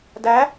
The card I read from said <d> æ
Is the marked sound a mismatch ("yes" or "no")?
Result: no